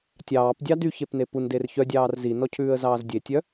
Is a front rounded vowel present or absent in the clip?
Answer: present